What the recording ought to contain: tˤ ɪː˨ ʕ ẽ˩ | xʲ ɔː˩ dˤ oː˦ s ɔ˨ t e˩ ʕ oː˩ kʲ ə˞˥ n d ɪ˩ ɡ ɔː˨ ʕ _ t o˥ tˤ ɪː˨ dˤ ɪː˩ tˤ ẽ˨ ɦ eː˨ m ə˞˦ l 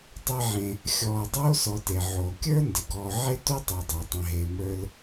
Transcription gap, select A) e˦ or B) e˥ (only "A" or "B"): B